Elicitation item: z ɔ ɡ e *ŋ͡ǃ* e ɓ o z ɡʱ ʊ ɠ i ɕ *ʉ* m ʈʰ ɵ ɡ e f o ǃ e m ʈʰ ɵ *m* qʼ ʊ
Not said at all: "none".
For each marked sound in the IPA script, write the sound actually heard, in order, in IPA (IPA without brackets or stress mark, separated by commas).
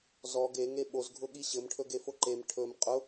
ŋ, ɘ, m